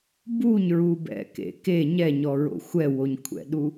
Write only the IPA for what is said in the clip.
b u ɲ ɹ u b ɛ̰ k ḛ k e ɲ ɛ ɲ ɔ ɹ o̰ xʷ ɛ w o ɲ kʷʰ ɛ̰ ɗ u

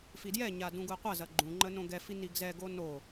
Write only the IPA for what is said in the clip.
f i d j ɛ ɲ a d ũ ɡ u ə̯ qʷ ɐ z ɐ ɡ͡ǃ ũ ŋ͡ǃ ə n õ ɡ ɛ f i n i ɡ z ɛ ɡ o n o

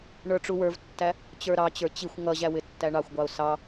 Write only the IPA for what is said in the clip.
ɳ ə˞ ʈ͡ʂ u w ə˞ v tː æ | t͡ɕ ə˞ ɾ ɑ t͡ɕ ə˞ t͡ɕ i xʷ ŋ ʌ ʑ æ w ɪ tː æ ɳ ɑ xʷ ɡʷ ɑ ʊ̯ s ɑ

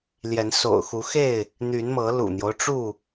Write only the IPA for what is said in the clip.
l j ɛ˨˦ n s o̰˨˩ ʊ̯ x u˨˦ x e˥˨ ɪ̯ | n̪ y˨˦ n m ɤ˨˦ l ṵ˨˩ n̪ j o˦ ʊ̯ ʈ͡ʂ u˥˨

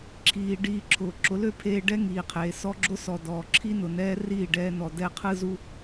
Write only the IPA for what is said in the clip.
ǁʰ iː˧ ɖ iː˧ ǁʰ ʊː˨ ǁ ʊ˨˦ l ø˦ pʰ eː˧ ɖ ɛ˦ ŋ iː˨ qʰ eː˨ s ɔ˦ ɡ͡ǁ ʊ˦ s ɔ˨ d ɔː˨ ǁʰ i˦ n ʊ˨ n ɛː˦ r iː˦˨ ɖ ɛː˧ n ɔ˨ d ɛ˧ qʰ ɯ˦ z u˦

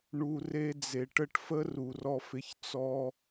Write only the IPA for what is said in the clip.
ɳ u˨ r e˧ d͡z e˨ ʈ ə˦ ʈ f ə˦ r u˨ r ɔ˧ f ɪ˧ ç t͡s ɔ˦

